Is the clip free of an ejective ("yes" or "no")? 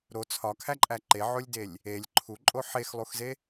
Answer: no